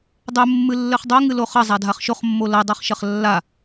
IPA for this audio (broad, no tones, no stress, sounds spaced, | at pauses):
dˤ ɘ mː ɨ lː ɘ χ dˤ o ŋ ɨ l o χ ɐ zˤ a dʱ a χ ʃ o χ mː o l ɐ dˤ a χ ʃ ɐ χ lː a